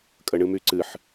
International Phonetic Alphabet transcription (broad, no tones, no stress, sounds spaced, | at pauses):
kʼ ə ɳ ɨ m y ǀ ɨ ħ